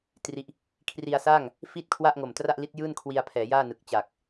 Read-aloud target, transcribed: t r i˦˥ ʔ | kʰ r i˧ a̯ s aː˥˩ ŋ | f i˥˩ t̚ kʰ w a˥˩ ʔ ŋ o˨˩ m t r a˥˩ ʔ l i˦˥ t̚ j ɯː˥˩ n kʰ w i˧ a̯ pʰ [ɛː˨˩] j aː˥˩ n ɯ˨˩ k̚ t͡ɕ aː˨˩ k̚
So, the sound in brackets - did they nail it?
no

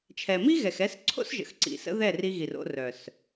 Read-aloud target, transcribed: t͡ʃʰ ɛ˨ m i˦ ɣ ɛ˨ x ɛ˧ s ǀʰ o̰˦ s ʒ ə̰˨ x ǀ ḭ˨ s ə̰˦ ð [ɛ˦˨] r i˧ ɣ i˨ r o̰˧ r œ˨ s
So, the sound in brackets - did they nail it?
yes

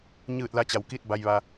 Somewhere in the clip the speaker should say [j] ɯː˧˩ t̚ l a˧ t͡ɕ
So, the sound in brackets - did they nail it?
no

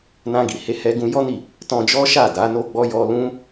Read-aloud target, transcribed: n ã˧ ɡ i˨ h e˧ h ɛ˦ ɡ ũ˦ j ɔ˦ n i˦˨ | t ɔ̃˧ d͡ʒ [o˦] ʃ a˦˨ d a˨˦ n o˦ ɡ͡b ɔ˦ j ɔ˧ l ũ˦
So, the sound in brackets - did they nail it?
no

